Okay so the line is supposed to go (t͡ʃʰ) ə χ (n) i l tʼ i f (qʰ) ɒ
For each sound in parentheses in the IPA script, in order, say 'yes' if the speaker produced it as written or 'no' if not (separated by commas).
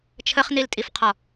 yes, yes, yes